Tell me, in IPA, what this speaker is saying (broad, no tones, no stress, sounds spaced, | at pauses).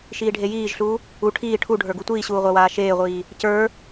ʃ iː ɖʱ e j iː ʒ ɬ uː | u ʈʰ iː ʈʰ u ɖʱ ə˞ ɡ u tʷ iː ɕ uː ʁʷ a w aː ʃ eː ʁʷ iː | c ə˞